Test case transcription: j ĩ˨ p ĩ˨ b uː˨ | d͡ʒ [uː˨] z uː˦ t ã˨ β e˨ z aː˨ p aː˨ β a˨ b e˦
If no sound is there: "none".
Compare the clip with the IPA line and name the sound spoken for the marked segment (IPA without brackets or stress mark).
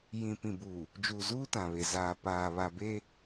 uː˨